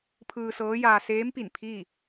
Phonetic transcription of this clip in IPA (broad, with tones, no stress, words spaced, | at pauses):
pʰɯː˧sɤː˧˥jaː˧ seː˧˥mpi˧˩n pʰiː˥˨